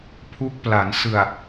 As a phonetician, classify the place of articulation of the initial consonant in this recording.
labial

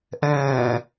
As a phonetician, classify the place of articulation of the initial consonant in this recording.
glottal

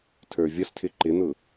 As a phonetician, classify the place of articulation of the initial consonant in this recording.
alveolar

